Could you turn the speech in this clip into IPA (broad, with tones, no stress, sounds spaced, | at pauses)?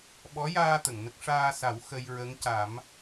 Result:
ɓ ɔ˧˥ j aː˧ t̪ ə˨˩˨ ŋ n ə˦˥ k̚ ʂ aː˧ s a˨˩˦ w x ə˧ j ɹ ə˧˥ ŋ c a˨˩˦ m